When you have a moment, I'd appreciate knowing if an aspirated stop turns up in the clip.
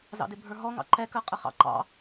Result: no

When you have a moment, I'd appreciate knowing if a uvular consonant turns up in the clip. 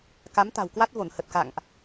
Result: no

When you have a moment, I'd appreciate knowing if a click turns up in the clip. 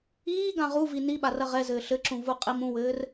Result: yes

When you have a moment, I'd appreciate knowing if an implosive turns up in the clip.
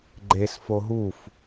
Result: no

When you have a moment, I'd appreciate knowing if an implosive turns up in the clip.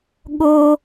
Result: yes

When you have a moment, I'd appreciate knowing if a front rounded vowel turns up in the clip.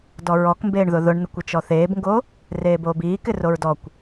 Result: no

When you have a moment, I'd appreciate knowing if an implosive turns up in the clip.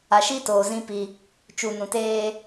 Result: no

